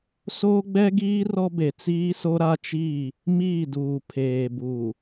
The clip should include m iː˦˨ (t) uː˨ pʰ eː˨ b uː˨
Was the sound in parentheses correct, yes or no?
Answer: no